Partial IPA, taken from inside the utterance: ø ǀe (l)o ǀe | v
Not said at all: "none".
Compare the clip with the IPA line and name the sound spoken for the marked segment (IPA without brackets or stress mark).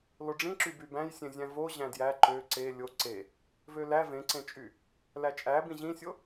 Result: lʲ